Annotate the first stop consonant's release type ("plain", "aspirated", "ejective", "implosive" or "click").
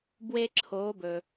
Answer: plain